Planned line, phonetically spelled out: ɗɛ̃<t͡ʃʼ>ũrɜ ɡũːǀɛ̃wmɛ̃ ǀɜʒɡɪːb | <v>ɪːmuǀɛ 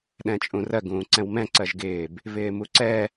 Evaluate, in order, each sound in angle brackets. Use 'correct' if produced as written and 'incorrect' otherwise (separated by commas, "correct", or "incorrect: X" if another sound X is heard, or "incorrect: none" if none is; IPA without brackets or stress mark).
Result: correct, correct